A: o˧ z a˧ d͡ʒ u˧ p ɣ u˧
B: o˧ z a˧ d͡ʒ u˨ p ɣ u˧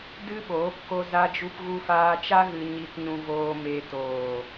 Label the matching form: A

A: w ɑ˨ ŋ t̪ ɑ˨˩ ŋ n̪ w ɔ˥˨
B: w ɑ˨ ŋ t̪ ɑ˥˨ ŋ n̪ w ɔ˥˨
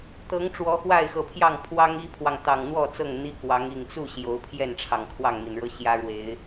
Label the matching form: A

